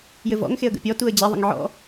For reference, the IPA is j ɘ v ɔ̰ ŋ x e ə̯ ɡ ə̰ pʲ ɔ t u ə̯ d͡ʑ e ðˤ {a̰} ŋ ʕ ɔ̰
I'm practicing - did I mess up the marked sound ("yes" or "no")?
yes